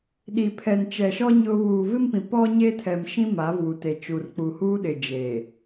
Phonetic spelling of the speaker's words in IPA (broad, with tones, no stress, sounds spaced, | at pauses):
ɗ i˨ pʰ ɛ˨ n t͡ʃ ɛ˨ ʃ ɔ˦ ɲ ʊ˦ β uː˨ v ɪ˦ m p ĩ˨ p ɔ˦ ɲ e˦ tʰ ɛ˨ m ʃ ĩ˦ m a˨˦ v uː˨ t e˨ t͡ʃ u˨ r k͡p u˨ h uː˦ ɗ ɪ˨ d͡ʒ e˨